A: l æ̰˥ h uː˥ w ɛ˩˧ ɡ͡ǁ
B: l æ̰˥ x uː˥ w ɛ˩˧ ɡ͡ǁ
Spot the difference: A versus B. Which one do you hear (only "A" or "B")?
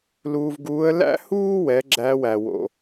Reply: A